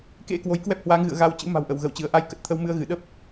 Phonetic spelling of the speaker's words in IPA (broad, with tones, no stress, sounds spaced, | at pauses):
k ḛ˧˥ k w o˨˦ j k w ɛ˦˥ p̚ h w aː˨˦ ŋ ɣ ɨ̰˧˨ ə̯ ɣ a˧ w t͡ɕ ɨ̰˧˥ m a̤˨˩ w ʔ ə˧˩ w ɣ ə˧˩ w t͡ɕ ɨ˧˩ ə̯ ʔ a˧ j k ə˨˩ t̚ t̪ʰ ə˧ w m ɨ˧ ə̯ ɣ ɨ˧˩ ɗ ə˦˥ p̚